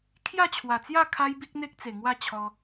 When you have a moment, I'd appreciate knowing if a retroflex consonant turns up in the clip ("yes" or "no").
no